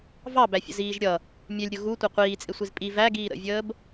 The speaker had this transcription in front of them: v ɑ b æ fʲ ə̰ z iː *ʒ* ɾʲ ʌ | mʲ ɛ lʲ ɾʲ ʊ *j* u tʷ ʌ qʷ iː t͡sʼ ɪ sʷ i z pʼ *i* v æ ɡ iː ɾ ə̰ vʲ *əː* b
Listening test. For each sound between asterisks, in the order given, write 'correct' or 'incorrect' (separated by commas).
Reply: correct, incorrect, correct, correct